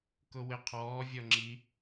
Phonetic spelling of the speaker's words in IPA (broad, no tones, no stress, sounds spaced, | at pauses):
k ʊ w ɪ qʰ ɔː vʲ ɔ ŋ͡ǁ i